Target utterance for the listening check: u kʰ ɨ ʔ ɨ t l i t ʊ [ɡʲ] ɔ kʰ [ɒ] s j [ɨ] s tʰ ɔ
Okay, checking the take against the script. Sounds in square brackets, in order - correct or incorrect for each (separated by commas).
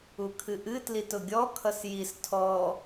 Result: correct, incorrect, incorrect